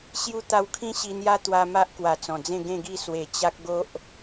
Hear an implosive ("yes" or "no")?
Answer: no